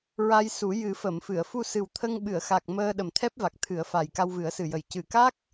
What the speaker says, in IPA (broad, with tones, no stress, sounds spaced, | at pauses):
ɹ a˧ j s u˨˩˦ j ɨ˨˩˦ f ə˨˩˨ m f ɨ˨˩˨ ə̯ f u˧ s ɨ˨˩ w t̪ʰ ə˧ ŋ ɓ ɨ˨˩˨ ə̯ x a˨˩ k̚ m əː˧ ɗ ə˨˩ m t̪ʰ ɛ˦˥ p̚ v a˨˩ k̚ t̪ʰ ɨ˨˩˦ ə̯ f a˨˩ j k a˧ w v ɨ˨˩˦ ə̯ s ɨ˨˩ j ə˨˩ j c ɨ˨˩ k a˦˥ k̚